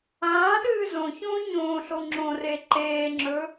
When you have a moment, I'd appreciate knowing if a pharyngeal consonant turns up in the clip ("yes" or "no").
no